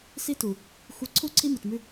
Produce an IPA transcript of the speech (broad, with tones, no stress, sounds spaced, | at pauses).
s i˦ t u˨ | xʷ i˨ ǀʰ u˦˨ ǀʰ i˦ m ɨ˨ t m ʉ˦